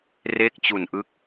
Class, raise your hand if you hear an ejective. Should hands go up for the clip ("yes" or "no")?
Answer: no